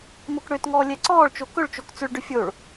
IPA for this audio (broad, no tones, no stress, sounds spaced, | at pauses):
m o k ɽ ø t ŋ ɔː lʲ ɛ ǀ ɔː ɭ t͡ʃ o k ɵ ɭ t͡ʃ o k t͡s ʏ ɭ ɖ ʏ fʲ o ɭ